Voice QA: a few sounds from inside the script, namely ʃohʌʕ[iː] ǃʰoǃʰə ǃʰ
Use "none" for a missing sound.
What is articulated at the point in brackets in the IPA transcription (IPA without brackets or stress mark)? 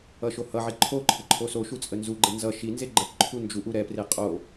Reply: i